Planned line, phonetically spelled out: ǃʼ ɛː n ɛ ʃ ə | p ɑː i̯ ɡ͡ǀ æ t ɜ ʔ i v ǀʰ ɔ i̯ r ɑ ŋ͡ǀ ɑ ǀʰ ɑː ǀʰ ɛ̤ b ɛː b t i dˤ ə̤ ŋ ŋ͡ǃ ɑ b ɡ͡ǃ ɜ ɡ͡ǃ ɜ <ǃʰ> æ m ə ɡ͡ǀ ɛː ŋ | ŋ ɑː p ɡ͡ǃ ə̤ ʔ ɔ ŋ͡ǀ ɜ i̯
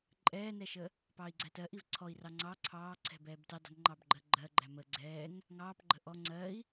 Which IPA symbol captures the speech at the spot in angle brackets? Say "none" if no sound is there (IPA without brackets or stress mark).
ɡ͡ǃ